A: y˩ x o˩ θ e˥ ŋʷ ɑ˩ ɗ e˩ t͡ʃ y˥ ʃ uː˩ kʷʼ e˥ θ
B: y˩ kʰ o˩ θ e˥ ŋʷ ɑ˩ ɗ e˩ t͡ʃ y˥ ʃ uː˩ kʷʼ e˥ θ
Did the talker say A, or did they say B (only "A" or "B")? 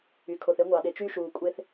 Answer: B